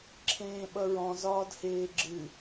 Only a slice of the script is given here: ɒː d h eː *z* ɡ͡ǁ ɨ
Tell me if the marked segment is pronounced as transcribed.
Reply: no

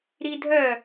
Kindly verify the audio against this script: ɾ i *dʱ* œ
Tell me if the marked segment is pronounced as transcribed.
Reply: yes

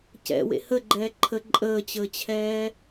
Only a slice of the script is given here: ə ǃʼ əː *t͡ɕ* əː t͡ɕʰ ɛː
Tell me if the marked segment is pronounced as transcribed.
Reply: yes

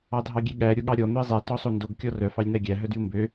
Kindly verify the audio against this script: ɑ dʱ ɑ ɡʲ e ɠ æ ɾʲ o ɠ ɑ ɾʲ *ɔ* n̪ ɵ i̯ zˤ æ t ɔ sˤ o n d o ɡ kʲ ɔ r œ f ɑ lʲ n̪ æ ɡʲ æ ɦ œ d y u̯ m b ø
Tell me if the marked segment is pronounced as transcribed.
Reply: yes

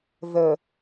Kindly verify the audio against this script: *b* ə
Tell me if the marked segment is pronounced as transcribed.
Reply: no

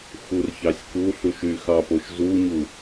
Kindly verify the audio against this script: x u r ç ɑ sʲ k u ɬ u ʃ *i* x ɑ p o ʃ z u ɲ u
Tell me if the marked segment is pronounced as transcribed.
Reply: no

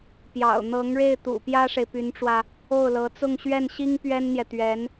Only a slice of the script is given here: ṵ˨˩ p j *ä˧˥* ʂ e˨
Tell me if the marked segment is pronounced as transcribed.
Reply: no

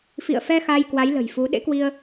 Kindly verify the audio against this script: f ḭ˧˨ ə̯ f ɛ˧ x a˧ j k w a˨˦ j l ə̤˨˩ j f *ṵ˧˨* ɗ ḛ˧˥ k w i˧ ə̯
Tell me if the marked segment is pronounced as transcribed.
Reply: no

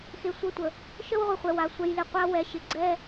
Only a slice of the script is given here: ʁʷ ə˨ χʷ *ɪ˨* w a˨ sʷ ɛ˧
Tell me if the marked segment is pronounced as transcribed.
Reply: no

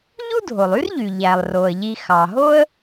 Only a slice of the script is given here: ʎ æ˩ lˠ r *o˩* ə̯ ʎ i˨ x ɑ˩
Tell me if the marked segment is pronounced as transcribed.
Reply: yes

